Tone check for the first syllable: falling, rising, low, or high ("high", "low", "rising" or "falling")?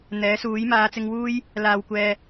rising